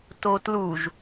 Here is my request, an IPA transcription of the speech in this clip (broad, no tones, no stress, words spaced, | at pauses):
totluʒ